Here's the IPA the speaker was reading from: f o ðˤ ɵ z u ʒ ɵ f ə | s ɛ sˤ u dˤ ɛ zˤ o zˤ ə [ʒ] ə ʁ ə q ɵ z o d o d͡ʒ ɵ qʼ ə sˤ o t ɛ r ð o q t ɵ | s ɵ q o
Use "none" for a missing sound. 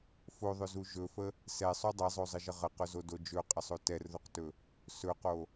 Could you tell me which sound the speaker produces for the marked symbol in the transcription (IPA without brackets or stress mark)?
ʒ